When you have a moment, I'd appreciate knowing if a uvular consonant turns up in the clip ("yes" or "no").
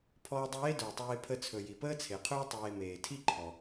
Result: yes